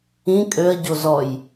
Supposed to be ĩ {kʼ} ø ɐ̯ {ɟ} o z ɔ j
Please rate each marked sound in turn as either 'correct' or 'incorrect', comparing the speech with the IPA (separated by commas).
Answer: correct, correct